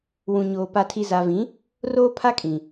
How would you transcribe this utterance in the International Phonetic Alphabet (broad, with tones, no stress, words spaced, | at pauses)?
wũ˨ɲoː˨ pa˨tʰi˨za˨vĩ˨˦ | roː˦pʰa˦kʼĩ˨